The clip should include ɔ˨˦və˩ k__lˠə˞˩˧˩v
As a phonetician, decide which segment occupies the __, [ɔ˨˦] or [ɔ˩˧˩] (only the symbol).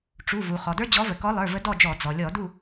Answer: ɔ˨˦